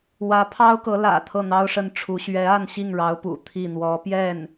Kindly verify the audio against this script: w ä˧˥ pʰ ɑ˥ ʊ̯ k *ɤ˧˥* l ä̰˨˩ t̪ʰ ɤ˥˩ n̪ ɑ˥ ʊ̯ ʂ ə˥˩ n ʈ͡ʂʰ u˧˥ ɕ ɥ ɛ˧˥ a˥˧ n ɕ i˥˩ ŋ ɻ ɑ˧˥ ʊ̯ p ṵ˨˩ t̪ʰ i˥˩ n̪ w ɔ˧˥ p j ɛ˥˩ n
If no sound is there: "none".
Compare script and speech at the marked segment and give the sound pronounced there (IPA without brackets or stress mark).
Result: ɤ˧˥